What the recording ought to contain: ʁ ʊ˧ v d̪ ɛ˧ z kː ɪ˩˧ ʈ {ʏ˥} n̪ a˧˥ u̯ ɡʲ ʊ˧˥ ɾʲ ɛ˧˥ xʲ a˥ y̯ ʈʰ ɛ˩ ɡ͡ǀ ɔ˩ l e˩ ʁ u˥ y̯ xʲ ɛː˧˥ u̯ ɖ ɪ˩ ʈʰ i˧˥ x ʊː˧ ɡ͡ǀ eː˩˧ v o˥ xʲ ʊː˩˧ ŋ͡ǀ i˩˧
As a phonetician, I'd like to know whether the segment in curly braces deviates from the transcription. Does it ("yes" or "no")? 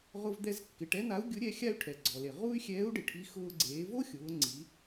yes